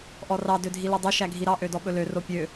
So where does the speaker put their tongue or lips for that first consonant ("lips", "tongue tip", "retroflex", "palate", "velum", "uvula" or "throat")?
throat